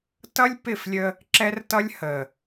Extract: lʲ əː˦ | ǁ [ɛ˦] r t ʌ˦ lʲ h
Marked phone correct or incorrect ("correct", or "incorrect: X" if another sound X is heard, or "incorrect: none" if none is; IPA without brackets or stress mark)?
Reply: correct